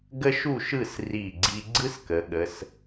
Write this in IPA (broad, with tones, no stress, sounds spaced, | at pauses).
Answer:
ɡ ə˥ ʃ u˥˧ ʃ ɯ˥˧ s r i˧˩ ɡ͡ǀ i˧ ɡ͡ǀ ɯ˥ s k ə˩˧ ɠ ə˩˧ s